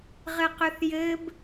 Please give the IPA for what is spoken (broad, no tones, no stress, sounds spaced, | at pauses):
ʁ ɘ q ʏ θ j ɘ b